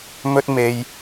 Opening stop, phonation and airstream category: plain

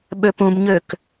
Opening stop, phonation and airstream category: implosive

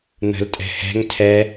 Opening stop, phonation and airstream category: ejective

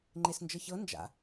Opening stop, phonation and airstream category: click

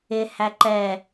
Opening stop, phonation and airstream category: click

